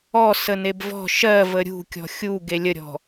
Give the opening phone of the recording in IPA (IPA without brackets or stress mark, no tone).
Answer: ɔ